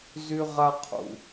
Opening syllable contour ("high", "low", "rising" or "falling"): high